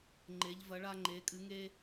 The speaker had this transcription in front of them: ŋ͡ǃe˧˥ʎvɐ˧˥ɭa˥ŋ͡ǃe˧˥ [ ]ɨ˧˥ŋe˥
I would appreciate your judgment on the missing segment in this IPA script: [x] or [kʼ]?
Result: kʼ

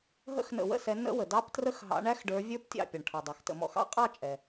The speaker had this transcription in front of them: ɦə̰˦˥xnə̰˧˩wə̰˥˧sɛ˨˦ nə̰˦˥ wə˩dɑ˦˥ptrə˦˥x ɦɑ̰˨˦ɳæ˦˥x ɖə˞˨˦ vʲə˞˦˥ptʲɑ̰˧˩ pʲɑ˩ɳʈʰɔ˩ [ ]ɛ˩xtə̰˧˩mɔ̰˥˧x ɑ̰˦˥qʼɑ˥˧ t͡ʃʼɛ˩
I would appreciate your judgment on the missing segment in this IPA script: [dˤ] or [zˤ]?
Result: dˤ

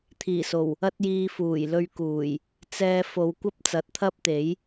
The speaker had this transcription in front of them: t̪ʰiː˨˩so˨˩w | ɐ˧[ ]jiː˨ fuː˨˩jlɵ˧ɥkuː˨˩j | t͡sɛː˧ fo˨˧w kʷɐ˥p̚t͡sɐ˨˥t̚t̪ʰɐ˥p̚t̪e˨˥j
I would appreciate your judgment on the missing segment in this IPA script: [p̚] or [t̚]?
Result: t̚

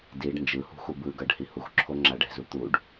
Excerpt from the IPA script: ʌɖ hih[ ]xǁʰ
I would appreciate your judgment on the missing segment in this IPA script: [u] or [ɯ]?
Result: u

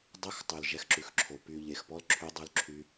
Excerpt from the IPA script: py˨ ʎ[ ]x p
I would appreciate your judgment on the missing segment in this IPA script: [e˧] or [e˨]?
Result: e˨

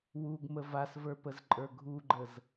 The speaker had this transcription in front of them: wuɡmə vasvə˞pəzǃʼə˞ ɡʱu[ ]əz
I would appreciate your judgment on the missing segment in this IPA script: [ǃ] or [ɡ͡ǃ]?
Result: ɡ͡ǃ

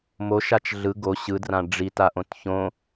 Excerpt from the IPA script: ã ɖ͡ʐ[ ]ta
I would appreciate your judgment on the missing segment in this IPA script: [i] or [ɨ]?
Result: i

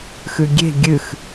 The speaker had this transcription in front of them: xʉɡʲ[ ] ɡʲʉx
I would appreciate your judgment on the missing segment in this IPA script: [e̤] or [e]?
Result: e̤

